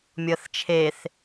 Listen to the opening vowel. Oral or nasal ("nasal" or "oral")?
oral